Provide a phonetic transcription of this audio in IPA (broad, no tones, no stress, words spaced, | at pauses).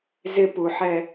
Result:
zɪ puħɛ